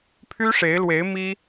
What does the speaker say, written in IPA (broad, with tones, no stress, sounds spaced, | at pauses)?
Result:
pʰ y˥ ʂ e˧˥ ɪ̯ l w e˧˥ ɪ̯ m i˥